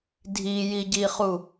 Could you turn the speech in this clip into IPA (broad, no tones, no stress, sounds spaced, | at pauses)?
dʱ i j i ɟ i χ u